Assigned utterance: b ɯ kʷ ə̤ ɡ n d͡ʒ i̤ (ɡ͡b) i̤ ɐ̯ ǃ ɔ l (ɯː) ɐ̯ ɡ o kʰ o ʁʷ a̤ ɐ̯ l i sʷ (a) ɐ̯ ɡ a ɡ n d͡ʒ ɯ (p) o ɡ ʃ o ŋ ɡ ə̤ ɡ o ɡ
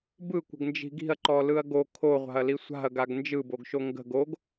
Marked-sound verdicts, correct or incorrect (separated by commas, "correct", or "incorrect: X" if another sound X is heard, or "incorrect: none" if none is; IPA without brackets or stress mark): incorrect: ɡ, incorrect: ɯ, incorrect: a̤, incorrect: b